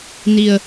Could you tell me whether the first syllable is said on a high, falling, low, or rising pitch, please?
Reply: low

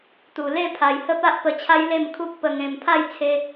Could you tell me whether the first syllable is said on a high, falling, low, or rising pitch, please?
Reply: low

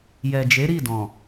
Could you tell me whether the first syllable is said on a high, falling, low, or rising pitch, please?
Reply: low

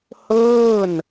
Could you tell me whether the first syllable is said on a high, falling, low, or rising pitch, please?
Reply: falling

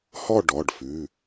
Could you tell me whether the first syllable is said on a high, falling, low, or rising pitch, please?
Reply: falling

